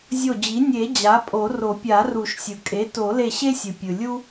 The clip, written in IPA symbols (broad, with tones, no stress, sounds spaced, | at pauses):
zʲ o˧˩ d͡ʑ i˩˥ nʲ e˨˩˦ d͡ʑ a˩˥ pʼ o˨˩˦ r o˨˩˦ pʲ a˨˩˦ r u˨˩˦ ʃ sʲ ɯ˩ kʼ e˩˥ t o˨˩˦ l e˧˩ ɕ e˦ sʲ ɯ˩ pʲ ɯ˩ lʲ u˦